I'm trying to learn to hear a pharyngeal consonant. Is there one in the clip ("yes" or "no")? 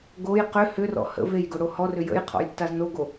no